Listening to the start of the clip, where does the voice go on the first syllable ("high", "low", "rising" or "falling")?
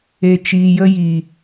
low